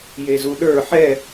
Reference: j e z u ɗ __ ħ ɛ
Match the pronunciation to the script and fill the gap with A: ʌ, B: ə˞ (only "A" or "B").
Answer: B